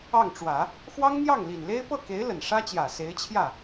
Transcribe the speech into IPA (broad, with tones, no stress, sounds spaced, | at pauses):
ɑ˥˩ ŋ ʈ͡ʂ w ä˨˩˦ | x w ɑ˥ ŋ n̪ j ɑ˥˩ ŋ l i˨˩ n l e˥ ɪ̯ p ɤ˥˩ k e˧˥ ɪ̯ l ə˨˩ n ʂ ä˥ t͡ɕ j ä˨˩ s e˧˥ ɪ̯ t͡ɕʰ j ä˥˩